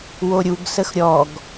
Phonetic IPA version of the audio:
woɾʲuɡ səxɾʲɔɡ

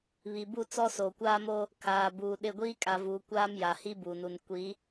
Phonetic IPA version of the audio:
βi˨bu˦˨ t͡sɔ˦soː˨kʷaː˦mo˦ | kʰaː˨buː˨ɗɪ˦˨ ɡʷiː˦kʼa˨vuː˨ kʷaː˦mja˨hi˦ bu˨nu˨n kʷi˨˦

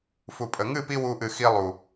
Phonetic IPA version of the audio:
fu˨pʼə˨ ŋɨ˦˨pi˧ wu˦ʔɨ˧xi˦ lˠu˨

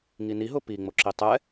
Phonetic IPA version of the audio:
ŋiniɦʊ piŋ͡mo ǁitˤɛ

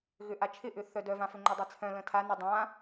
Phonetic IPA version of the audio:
ɣʏʔat͡ʃʰɪʔʏ θœdœvãfʏ ŋ͡ǃʏdˤet͡sʰœ̃ lə̃tʰa nə dˤã

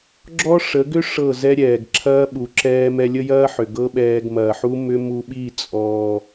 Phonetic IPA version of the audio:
ɡ͡ǁɔ˦ʂə˨˦ɡʏ˦ ʂɤ˦˨ zɛ˦ ɾʲɛː˨ɡǁʰɐː˦ɓu˨ ǁɛː˧mɛ˧lʲə˦ jɐː˦ħʏ˨ ɡɤ˦ɓɛː˧ɡmɐː˨ħu˦ mʏ˦ mu˧ɓi˦˨ t͡sʼɔː˨

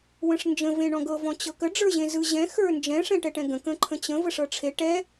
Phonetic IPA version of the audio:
wə̃ʂnd͡ʒə̃ vẽɳɔ̃ɡɤ vɔ̃t͡ɕɤkə ɖ͡ʐə˞ʑẽzɯ ʑɛ̃ xə˞nd͡ʒɛ̃ ʂɛ̃ʈɛʈɛ̃ɡə̃ kə̃ǃʰə̃t͡ɕə̃ vəʂɤʈ͡ʂʰe ʈɛ

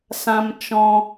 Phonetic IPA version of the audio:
sã˧mt͡ʃɔ̃˧

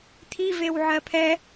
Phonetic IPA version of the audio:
t̪ʰivew ʕɜpʰɛ

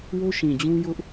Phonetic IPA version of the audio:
wo˦ʃĩ˨d͡ʑũ˦jʊ˦ʔ

